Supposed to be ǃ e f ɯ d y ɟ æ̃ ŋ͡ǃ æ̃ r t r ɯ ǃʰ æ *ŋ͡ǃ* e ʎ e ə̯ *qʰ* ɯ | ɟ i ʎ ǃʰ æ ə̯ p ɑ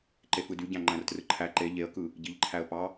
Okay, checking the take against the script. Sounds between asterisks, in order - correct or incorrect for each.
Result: incorrect: ǃ, incorrect: k

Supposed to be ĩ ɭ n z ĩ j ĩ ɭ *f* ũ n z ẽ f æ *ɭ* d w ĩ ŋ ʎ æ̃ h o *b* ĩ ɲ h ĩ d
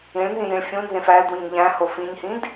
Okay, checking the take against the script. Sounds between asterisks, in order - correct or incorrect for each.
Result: incorrect: fʲ, incorrect: l, incorrect: f

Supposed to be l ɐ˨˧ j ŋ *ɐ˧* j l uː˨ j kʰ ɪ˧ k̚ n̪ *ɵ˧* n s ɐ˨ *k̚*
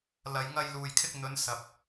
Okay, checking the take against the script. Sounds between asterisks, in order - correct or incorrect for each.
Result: correct, incorrect: ɵ˨˧, incorrect: p̚

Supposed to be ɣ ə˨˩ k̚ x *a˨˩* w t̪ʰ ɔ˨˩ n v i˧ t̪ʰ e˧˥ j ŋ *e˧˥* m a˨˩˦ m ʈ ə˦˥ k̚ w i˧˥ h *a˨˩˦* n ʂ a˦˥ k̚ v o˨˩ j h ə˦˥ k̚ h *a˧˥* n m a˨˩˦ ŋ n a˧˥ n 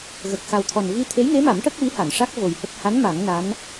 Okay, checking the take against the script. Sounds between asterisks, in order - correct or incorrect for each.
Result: correct, correct, incorrect: a˨˩˨, correct

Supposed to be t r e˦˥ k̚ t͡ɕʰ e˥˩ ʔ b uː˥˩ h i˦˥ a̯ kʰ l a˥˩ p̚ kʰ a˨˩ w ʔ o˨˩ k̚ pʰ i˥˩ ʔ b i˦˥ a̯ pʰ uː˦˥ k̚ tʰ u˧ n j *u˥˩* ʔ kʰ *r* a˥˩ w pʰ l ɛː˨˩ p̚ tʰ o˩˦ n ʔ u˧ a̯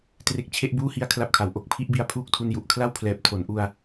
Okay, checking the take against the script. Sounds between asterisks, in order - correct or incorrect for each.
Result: incorrect: u˨˩, incorrect: l

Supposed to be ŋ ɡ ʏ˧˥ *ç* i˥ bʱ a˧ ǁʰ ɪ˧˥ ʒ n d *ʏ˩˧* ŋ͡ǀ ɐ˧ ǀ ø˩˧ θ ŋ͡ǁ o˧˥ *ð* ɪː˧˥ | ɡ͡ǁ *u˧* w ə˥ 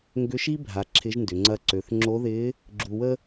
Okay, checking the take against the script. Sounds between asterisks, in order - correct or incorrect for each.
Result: incorrect: ʃ, correct, correct, correct

